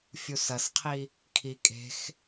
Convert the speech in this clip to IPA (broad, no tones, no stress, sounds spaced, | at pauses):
fʲ u s ɐ s qʰ i | kʰ i kʼ e̤ x